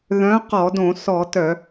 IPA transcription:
ð œ̃˨˥ q ɔ˧˩˧ d õ˧˩˧ s ɔ˧˩˧ t œ˧˩˧

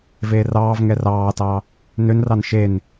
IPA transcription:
v eː r ɑː v ŋ ɛ r ɑː t ɑ | n ø n r ɑ n ʃ e n

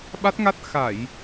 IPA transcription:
ɓ a˦˥ t̚ ŋ a˦˥ t̚ x a˧˩˨ j

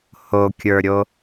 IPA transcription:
h o kʲ ə˞ ɾʲ o

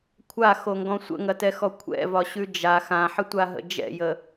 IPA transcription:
kʷʰ a x o ŋ ɡ ɔ̃ sʷ ə̰ ŋ ɐ t ɛ x ɔ kʷʰ ɛ̰ v ɒ ɕ ʉ d͡ʒ a x ã ħ ə tʷ a ɦ ə̰ d͡ʒ ɛ̰ j ə

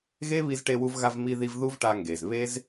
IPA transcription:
ɣ e˦ β i˧ z ʈ e˧ w u˧ v ɣ a˧ v m i˧ ð i˧ v ð u˦ v ʈ a˧ ŋ ɡ e˨ z β e˦ z

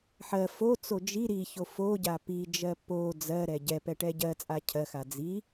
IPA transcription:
ħ ɜ f o t͡s o d͡ʒ i ɾ i ç o f o ɟ a p i d͡ʒ ɜ p o d͡z ɜ ɾ ɛ ɟ ɛ p ɛ ʈ ɛ ɟ ɜ t͡sʼ a cʰ ɜ x a d͡z i

